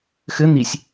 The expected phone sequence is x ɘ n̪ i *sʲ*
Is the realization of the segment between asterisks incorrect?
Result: no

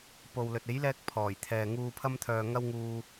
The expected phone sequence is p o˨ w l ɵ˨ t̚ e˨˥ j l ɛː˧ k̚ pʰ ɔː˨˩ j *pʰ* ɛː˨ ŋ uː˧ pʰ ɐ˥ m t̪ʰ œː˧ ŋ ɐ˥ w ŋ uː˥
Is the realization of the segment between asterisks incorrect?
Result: yes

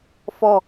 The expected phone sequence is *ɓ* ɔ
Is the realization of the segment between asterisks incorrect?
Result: yes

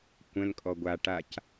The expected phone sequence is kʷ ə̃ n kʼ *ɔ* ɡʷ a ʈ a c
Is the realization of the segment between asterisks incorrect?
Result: no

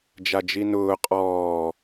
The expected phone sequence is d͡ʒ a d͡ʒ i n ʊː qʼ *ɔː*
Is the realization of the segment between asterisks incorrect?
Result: no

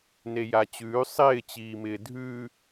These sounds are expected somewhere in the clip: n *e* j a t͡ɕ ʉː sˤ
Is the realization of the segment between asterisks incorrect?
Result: no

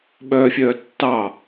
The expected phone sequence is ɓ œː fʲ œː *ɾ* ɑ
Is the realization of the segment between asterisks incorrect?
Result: yes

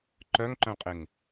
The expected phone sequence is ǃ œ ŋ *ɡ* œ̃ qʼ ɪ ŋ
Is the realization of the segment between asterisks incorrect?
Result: yes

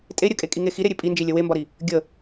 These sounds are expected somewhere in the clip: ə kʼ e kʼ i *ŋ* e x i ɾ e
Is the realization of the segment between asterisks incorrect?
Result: no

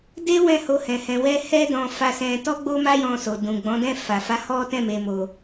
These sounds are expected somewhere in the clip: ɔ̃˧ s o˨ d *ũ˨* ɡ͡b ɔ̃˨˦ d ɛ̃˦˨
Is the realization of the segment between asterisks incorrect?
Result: no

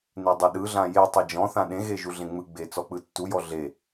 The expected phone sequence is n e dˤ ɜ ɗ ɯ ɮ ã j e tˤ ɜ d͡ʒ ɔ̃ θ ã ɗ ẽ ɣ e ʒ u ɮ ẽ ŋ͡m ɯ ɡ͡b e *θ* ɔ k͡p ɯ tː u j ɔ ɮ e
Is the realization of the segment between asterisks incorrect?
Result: yes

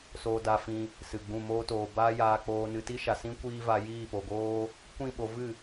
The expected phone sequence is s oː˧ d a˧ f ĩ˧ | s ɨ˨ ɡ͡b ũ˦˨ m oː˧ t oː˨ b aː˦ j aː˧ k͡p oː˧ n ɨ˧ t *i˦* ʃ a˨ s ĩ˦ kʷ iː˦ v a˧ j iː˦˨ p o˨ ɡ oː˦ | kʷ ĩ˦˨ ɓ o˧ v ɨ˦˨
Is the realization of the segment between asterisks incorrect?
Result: no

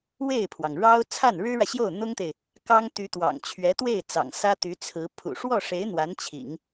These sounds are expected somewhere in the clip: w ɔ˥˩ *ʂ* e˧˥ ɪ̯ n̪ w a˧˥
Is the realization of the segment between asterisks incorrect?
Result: no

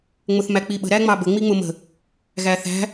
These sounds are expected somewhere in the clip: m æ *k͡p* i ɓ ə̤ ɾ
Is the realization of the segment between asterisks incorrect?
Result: no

